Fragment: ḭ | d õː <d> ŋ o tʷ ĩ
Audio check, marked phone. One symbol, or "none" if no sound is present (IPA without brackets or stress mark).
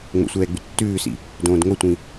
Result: d